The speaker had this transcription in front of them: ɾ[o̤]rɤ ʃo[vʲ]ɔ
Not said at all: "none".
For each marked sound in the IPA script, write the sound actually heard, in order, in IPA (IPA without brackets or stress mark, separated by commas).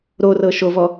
o, v